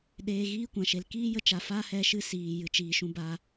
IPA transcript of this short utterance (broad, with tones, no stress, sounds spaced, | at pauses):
ɗ eː˧ ɣ iː˦ kʷ ã˨ ʃ e˨ l k iː˦ j ə˧ t͡ʃ a˨ f a˦ h ɛ˧ ʃ ɨ˧ s iː˨ j ɨ˨ t͡ʃ iː˨ ʃ ũ˧ b a˧